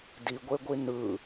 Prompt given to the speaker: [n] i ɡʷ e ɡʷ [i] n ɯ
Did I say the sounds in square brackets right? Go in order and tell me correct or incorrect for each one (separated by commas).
incorrect, correct